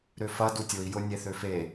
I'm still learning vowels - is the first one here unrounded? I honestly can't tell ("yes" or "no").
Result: no